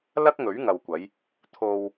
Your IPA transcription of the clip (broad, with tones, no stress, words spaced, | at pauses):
lɐ˥k̚ŋɵ˨˥ɥŋɐ˨wkʷɐ˨˧j | t̪ʰo˧w